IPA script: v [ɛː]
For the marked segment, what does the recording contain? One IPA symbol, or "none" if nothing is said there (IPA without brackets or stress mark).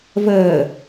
əː